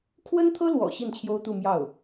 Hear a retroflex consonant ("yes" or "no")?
no